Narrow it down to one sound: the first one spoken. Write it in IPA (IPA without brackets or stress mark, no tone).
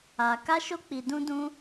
a